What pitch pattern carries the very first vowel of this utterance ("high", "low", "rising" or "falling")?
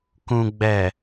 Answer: low